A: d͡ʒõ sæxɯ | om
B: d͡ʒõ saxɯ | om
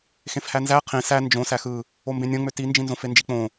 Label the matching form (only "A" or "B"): A